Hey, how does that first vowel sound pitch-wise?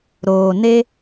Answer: low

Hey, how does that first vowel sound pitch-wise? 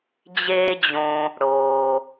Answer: high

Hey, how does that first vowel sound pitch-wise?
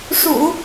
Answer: low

